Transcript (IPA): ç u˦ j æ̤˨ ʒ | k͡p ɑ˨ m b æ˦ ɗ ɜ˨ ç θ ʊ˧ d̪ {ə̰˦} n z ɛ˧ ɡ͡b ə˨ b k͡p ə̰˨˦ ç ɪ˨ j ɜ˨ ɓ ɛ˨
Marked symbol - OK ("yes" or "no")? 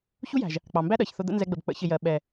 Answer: yes